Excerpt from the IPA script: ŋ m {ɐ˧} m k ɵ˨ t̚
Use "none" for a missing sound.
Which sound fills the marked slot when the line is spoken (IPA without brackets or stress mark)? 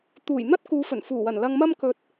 ɐ˧